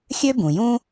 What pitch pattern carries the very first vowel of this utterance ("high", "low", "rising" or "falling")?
high